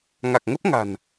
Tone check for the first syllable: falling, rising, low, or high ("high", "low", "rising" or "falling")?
low